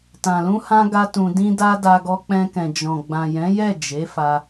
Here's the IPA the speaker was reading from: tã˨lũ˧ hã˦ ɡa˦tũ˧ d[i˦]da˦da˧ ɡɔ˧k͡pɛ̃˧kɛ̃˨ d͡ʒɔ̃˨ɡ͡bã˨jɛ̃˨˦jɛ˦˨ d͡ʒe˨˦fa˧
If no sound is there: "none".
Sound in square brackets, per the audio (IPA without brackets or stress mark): ĩ˦